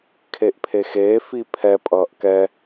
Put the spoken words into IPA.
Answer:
kʰ e ʔ pʰ e x eː f i pʰ ɛ pʼ ʌː ʔ k ɛ

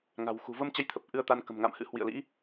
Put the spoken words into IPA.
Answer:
ŋ a̤˨˩ w x ṳ˨˩ v ə˧ m t͡ɕ ə˨˦ j t̪ʰ ə˨˩ p̚ ʔ ɨ˧ ə̯ t̪ a˧ n k ə̤˨˩ m ŋ a̰˧˨ m h ɨ̰˧˥ h w ḭ˧˨ ə̯ l ḭ˧˥

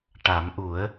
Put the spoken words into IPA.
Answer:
ʈ a˨˩˦ m ʔ u˨˩˦ ə̯

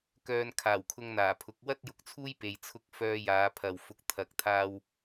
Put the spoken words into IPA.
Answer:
k œː˧ n kʰ aː˨˩ w kʰ ʊ˧ ŋ n̪ aː˨˩ pʰ ʊ˨˥ k̚ w ɐ˥ t̚ j ʊ˨ k̚ t͡sʰ uː˥ j p e˨ j t͡sʰ ʊ˥ k̚ f œː˧ j aː˨˧ pʰ ɐ˨ w f ʊ˧ k̚ t̪ʰ ɐ˨˥ k̚ t̪ʰ aː˧ w

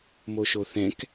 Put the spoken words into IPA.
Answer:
m o ʃ o θ ɛ̃ k

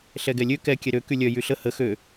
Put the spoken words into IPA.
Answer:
ɬ ɛ ɡ ɛ lʲ ø k ɛ kʲ ɛ ɾ ø k y lʲ œ j y ɬ ə h ə x ø

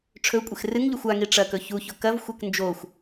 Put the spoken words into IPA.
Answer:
ʈ͡ʂʰ ɵ kʷʼ e x r ɨ ŋ ʎ ɵ xʷ a ŋ i ʈ͡ʂ ɐ k ɵ ç u ç o k ɐ v xʷ e k n d͡ʒ o xʷ

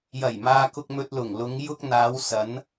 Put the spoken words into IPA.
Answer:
j ɐ˨˩ j m aː˨ k ʊ˨ k̚ m ɵ˨ t̚ l ʊ˨˩ ŋ l ʊ˨˧ ŋ j ʊ˧ k̚ n̪ aː˨˧ w s ɐ˨˧ n

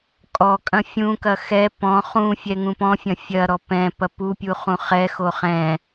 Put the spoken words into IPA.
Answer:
kʼ ɔ kʼ ɐ̃ fʲ ũ k ɐ x ɛ p ɔ̃ χ ũ fʲ ɛ ŋ ũ p ɔ̃ fʲ ɐ̃ fʲ ɐ ɾ ɔ p ɛ̃ p ɐ p u pʲ u χ ũ χ ɛ x o χ ɛ̃

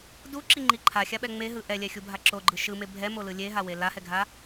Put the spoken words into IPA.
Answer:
d u ǁ i ŋ͡ǃ i ǃʰ a xʲ a ɓ ɛ ŋ͡m e ɦ ɯ ʔ ɛ lʲ ɛ xʲ u bʱ a ǁ o ɡ͡ǃ ɯ ʃ ɯ m e bʱ ɛ m o l ɯ lʲ e ɦ a w e l a h ɛ ɡʱ a

